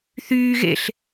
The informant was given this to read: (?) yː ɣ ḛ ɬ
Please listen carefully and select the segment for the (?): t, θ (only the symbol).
θ